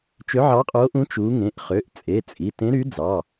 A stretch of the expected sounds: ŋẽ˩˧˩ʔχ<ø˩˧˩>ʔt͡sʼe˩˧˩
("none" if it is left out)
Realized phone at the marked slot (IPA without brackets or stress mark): ø˩˧˩